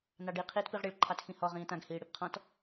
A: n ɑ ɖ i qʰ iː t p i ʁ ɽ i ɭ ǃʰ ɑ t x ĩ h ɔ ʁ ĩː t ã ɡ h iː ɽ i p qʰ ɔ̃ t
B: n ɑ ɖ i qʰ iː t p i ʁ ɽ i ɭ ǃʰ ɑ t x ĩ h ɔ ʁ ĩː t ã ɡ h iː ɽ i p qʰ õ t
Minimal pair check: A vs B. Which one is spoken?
A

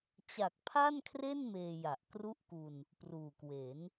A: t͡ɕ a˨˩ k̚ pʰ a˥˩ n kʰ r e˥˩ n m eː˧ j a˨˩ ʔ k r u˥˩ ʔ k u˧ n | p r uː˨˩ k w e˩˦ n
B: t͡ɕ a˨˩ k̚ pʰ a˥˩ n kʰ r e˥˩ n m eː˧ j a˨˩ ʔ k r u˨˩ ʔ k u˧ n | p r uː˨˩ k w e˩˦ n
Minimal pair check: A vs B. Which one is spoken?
A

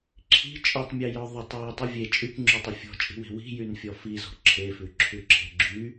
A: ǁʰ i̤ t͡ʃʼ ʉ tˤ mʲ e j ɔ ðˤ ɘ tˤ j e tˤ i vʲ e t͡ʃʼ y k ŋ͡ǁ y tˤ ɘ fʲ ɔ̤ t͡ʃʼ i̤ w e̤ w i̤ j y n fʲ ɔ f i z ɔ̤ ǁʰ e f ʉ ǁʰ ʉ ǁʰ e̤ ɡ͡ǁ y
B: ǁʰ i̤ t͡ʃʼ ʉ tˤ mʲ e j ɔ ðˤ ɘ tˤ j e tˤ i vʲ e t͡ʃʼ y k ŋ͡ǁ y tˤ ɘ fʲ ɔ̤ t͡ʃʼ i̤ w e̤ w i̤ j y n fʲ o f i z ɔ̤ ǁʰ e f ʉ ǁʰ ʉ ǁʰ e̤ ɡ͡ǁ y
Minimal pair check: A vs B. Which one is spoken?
A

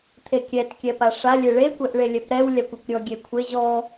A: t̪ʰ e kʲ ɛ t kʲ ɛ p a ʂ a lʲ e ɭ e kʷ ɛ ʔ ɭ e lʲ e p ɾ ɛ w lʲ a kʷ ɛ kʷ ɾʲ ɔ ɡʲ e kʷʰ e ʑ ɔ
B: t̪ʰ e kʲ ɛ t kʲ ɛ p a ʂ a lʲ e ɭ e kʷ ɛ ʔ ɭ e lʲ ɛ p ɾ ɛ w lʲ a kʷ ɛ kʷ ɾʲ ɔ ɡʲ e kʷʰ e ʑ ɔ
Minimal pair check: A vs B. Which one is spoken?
B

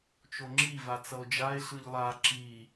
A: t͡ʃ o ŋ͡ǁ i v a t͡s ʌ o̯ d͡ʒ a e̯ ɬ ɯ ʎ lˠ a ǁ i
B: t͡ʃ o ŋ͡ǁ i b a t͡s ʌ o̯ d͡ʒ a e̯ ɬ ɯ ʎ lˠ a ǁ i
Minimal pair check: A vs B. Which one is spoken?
A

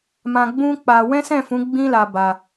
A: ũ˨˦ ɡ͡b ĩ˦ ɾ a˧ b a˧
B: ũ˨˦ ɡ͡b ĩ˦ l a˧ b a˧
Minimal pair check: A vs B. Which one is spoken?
B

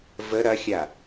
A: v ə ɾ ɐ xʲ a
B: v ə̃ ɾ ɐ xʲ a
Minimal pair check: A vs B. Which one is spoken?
A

